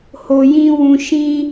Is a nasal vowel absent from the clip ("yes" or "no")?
no